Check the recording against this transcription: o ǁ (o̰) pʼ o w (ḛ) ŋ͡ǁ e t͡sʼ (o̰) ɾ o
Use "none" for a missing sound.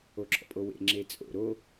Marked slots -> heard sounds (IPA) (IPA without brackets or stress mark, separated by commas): ɔ̰, ḛ, o̰